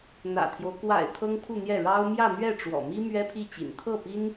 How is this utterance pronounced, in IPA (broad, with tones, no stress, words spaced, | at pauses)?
n̪ä̰˨˩t̪ʰjo˦ʊ̯ kwa̰˨˩ɪ̯ t̪ʰɤ˥ŋpʰu˥˧n̪jɛ˥˩ ɻɑ˥ʊ̯ mjä˥˧n̪ɥɛ˥˩ʈ͡ʂwɔ̰˨˩mi˥ mɥɛ˥pʰi˥˩t͡ɕḭ˨˩n t̪ʰɤ˥˩pi˥n